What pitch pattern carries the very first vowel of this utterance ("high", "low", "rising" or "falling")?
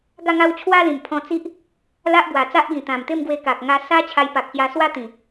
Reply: falling